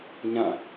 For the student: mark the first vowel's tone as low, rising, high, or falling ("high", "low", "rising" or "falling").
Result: falling